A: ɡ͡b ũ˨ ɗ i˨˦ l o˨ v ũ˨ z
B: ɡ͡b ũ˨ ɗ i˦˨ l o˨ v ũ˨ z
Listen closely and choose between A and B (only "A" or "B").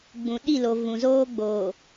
B